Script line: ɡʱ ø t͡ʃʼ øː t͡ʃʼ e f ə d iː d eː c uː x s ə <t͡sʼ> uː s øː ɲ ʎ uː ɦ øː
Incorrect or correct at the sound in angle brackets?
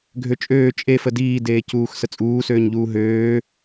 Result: correct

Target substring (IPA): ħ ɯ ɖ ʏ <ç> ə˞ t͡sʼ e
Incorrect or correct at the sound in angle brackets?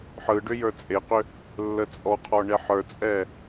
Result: incorrect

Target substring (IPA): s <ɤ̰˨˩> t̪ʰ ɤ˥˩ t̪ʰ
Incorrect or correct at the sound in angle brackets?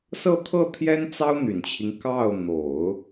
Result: incorrect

